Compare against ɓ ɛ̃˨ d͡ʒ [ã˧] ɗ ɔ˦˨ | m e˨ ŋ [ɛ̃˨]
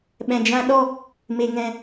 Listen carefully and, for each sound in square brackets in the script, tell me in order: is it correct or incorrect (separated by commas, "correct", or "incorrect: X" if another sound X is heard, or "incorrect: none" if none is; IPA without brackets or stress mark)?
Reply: correct, correct